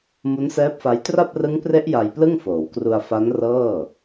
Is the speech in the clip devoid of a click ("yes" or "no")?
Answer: yes